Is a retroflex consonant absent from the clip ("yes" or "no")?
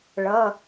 no